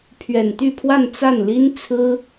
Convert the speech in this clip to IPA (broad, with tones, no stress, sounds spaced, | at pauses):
pʰ ɥ ɛ˨˩ n t̪ y˥˧ pʰ w a˥˧ n t͡s a˥˩ n l i˥ n t͡sʰ ɹ̩˥